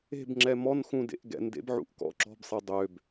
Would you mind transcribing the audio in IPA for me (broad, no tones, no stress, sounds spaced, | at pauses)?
e̤ b ŋ͡ǁ ɛ m ɔ n x ũ d ḛ ʔ ɡ ɛ̰ n d ḛ b ʕ ṵ ʔ k ɔ̰ ǁ ɔ̤ b sˤ e dˤ ø b